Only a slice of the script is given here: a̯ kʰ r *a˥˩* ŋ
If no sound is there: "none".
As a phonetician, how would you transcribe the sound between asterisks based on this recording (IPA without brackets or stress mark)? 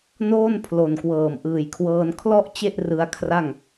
a˥˩